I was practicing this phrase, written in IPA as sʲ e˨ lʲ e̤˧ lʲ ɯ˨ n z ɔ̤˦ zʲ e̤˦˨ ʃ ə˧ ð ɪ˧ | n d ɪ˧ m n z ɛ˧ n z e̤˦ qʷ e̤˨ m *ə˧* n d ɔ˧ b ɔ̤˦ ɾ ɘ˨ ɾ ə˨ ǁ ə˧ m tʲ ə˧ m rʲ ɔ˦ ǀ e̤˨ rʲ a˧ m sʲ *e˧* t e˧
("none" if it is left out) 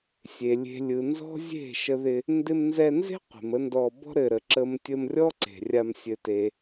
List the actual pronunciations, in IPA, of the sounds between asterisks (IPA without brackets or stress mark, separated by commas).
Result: ə˦, ɘ˧